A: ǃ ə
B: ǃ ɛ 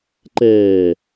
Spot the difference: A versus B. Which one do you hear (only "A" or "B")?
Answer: B